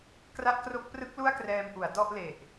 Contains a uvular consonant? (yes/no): no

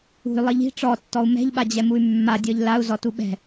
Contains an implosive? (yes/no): yes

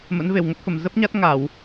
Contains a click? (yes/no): no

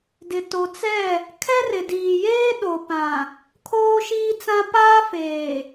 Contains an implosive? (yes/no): yes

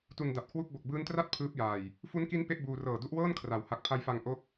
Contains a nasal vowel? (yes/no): no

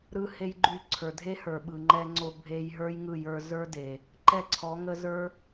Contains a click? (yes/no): yes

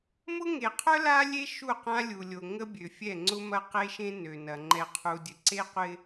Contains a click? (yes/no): yes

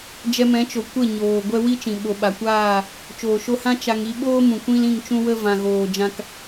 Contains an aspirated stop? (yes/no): no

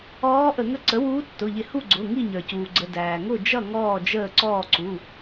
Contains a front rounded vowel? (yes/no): no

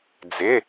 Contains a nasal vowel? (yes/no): no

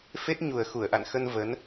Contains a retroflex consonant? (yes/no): no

